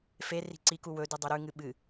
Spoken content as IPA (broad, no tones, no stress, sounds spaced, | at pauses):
f e r i̤ ǀ i k u w ɵ d ɨ dˤ ʉ ɾ ʉ ŋ ɨ ɓ ɨ